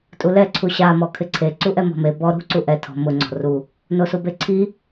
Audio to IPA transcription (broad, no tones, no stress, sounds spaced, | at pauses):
tʼ u l ɛ ǀʰ u ɕ a m ɔ kʰ ɪ ǀʰ e ǀ u ʔ ɛ m ɔ̤ m e b ɔ ɾ ṳ ǀ u ʔ ɛ tʰ ɔ̤ m ʊ ŋ͡ǀ ɔ̤ r u | n o s u b e ǀʰ i